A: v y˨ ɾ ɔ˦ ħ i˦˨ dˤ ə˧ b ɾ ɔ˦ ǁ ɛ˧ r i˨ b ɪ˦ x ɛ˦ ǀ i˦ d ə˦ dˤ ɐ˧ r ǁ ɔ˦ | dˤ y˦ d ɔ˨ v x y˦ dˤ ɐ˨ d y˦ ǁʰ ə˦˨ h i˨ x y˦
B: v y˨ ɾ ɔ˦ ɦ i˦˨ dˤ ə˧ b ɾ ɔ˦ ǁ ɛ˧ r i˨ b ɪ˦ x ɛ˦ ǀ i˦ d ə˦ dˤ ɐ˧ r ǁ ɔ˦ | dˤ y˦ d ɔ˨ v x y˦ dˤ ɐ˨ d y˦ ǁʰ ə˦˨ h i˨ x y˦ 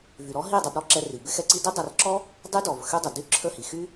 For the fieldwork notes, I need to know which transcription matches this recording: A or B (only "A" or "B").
B